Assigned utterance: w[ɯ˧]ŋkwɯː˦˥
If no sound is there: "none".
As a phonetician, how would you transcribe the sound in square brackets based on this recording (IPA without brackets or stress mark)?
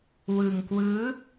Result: ɯ˧